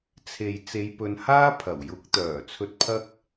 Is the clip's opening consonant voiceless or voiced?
voiceless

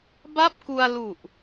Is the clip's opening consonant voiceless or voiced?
voiced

